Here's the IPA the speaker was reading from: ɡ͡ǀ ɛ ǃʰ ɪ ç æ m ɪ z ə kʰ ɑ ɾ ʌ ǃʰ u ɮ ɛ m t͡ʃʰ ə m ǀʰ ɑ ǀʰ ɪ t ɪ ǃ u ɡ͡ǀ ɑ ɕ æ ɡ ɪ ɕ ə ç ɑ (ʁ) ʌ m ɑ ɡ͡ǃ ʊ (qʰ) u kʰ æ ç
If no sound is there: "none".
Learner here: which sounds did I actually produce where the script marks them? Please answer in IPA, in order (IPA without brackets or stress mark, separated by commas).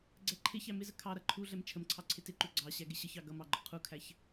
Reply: ɡ, qʰ